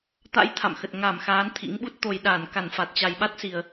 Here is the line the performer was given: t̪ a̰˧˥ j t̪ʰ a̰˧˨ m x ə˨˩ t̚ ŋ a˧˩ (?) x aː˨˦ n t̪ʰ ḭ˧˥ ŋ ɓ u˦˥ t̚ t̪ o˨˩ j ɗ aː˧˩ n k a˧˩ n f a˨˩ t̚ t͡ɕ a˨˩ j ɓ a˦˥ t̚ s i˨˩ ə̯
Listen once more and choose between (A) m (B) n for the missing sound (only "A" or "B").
A